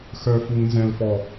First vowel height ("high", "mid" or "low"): mid